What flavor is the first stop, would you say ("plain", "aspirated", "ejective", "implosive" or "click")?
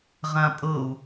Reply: ejective